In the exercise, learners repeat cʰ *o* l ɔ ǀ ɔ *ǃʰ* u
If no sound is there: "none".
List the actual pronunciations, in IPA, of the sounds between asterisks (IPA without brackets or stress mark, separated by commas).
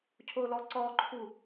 o, ǃʰ